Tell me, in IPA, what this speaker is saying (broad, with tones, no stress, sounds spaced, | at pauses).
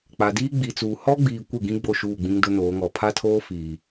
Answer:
k͡p a˨ d iː˦ ɡ͡b i˨ t͡s uː˨ h ɔ˦ ɡ͡b iː˨ kʷ ɪ˦˨ ɡ ĩ˦ ɡ͡b o˦˨ ʃ uː˦˨ ɡ͡b ĩ˦ ŋ d ʊ˦ n oː˨˦ ŋ ɔ˨ pʰ a˦ tʰ oː˦ f iː˨